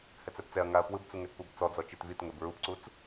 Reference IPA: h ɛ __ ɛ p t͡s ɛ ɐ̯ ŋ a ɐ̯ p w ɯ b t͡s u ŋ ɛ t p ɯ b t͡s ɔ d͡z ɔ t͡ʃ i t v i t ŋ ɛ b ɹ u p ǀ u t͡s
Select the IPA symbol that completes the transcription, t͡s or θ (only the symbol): t͡s